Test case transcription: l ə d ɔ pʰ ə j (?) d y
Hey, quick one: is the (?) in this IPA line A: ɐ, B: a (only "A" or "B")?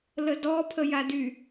B